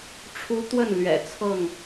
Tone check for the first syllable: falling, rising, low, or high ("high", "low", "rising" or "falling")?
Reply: high